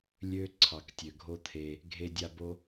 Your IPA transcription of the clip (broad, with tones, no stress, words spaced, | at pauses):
lʲø˦ ǀʰɑ˨ktʲø˨ɡʱo˦t̪ʰe˧ | ɡʱe˧ dʲa˧bo˦